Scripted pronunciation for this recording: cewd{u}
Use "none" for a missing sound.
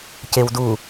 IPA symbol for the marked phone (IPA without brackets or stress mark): u